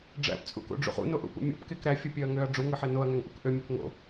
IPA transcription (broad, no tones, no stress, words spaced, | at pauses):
ɖ͡ʐæ̰pt͡sʼṵko̰ɖ͡ʐṵχ ṵnoʔṵpṵ mʲo̰pkek ɾæfʲɯpʲøɐ̯ŋøɐ̯ ɖ͡ʐuŋɯħe noɐ̯ŋæŋʔuk ʔømʲok ŋo̰